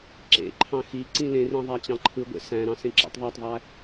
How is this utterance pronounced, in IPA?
ǁ ḛ ǃʰ ɑ̃ x i ǀ ĩ l ẽ r ĩ ðˤ æ t͡ɕ ɑ̃ ǃʰ ɯ ɡʷ ḛ s æ̃ ɾ ɑ̃ s ẽ ǁ æ̰ tˤ ðˤ æ tˤ ðˤ æ

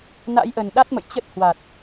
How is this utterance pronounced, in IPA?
n a̰˧˥ j ʔ ə˨˩ n ɗ a˦˥ t̚ m ə̰˧˨ j t͡ɕ ə˦˥ t̚ h w a˨˩ t̚

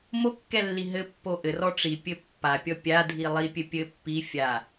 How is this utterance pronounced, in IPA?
m o kː ɛ lː i ɦ ɘ pː o ʔ ɘ r ɔ ʈ͡ʂ i pʲ ɘ pː a pʲ ɔ pʲ a dʱ i lˠ i pʲ ɘ pʲ ɘ pː i fʲ a

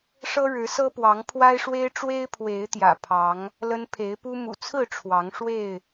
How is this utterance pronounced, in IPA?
ʂ ɤ˦ ɻ ɻ̩˨˦ s ɤ˦ p w ɑ˨˦ ŋ pʰ w a˦ ɪ̯ ʂ w e˦ ɪ̯ ʈ͡ʂ w e˦ ɪ̯ pʰ w e˨˦ ɪ̯ t̪ j ä̰˨˩ pʰ ɑ˨˦ ŋ | l ə˦ n pʰ e˨˦ ɪ̯ p u˦ m ṵ˨˩ t͡sʰ ɹ̩˥˨ ʈ͡ʂʰ w ɑ˨˦ ŋ ʂ w e˥˨ ɪ̯

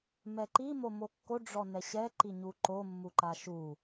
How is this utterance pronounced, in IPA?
m ɛ ǃ i m o m o kː o ɖ͡ʐ ɔ n ɛ ɕ ɛ ǃ i ɲ u ǃ o mː u ǃ a ʃ u

